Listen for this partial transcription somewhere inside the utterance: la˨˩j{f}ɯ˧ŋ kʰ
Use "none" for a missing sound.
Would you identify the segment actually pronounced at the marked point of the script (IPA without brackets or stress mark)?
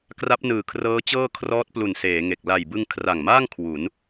b